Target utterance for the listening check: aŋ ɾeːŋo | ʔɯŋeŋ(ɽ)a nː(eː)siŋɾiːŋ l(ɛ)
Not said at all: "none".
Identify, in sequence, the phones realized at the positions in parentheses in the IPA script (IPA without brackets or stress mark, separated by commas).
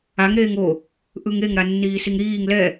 ɾ, iː, ɛ